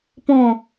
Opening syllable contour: falling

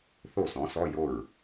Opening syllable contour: falling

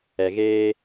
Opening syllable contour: low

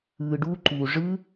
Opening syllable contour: low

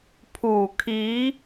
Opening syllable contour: low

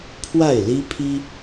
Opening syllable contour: falling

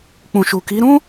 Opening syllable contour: low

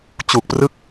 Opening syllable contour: low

